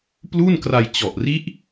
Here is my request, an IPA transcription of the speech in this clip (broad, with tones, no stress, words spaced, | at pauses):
plu˥˩nkra˧j t͡ɕɔ˨˩ʔri˦˥ʔ